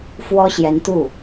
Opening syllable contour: high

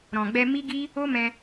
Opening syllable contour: low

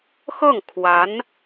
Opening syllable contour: falling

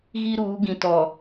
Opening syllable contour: high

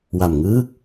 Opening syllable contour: low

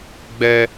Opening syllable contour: high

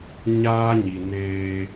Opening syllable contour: high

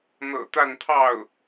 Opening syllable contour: low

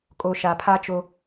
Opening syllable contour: low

